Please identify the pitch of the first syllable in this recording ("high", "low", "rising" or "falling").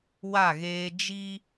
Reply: falling